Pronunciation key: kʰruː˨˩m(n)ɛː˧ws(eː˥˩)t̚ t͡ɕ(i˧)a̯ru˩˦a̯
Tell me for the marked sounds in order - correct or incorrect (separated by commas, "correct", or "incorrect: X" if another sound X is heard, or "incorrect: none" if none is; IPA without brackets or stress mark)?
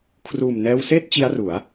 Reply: correct, correct, incorrect: i˦˥